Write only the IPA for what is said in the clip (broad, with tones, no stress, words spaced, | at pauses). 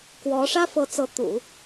kwɔ˧˥ ʂä˥fɤ˧˥t͡sɤ˧˥ t̪ṵ˨˩˦